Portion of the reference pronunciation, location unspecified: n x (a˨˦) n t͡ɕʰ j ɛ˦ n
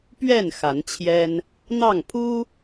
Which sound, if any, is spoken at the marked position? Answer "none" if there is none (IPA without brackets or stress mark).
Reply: a˨˦